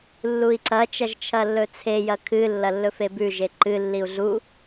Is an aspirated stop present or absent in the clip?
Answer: present